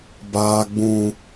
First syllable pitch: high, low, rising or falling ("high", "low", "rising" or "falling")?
high